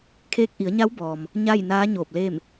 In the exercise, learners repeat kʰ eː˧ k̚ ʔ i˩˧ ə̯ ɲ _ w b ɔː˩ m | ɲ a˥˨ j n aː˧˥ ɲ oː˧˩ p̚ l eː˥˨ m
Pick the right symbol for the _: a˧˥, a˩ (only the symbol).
a˧˥